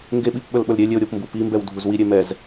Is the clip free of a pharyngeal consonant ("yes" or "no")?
yes